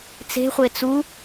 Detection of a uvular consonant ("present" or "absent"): present